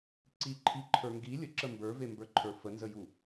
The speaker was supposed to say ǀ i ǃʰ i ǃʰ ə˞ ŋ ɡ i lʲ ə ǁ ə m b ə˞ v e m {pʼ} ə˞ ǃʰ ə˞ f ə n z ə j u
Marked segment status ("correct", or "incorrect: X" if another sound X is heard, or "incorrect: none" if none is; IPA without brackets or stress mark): incorrect: b